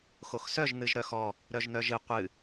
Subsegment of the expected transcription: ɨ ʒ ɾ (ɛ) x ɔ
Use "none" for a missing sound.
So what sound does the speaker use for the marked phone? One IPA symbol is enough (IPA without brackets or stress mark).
œ